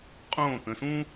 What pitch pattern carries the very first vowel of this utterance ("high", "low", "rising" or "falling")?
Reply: falling